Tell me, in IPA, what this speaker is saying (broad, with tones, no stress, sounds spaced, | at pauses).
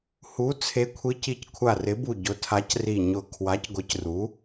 h u˨˥ t͡sʰ e˨˥ kʷʰ i˨˥ c i˨˥ c kʷʰ a˧˩ r ɪ˨˥ b u˧˩ ɟ ʊ˨˥ tʰ a˨˥ c r i˧˩ ɲ ʊ˧˩ kʰ w a˨˥ c ɡʷ ɪ˨˥ c r u˨˥